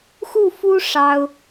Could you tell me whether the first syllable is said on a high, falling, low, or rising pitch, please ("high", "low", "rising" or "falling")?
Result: falling